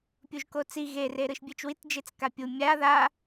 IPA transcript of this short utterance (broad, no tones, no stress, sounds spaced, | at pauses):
pʲ u ʒ k o t͡s i ɣ e r e ɾ ɯ ʃ bʲ e t͡ʃ w i t d͡ʒ e t͡s k a pʲ u mʲ a ð a